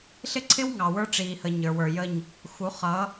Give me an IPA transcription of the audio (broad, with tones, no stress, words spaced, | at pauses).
ɬɪ˦ǀʰɪ˦wŋɑ˨ wə˞˦ʈ͡ʂiː˨hə˨ ɲə˞˨wə˞˨jə˦˨ɲ | xu˨˦χʌ˨˦